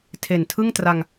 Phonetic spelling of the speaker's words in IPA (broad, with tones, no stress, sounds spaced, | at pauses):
tʰ e˨˩ n tʰ ɯ˥˩ ŋ t r a˧ ŋ